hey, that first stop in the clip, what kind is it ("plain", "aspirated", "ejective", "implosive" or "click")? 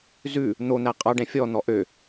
ejective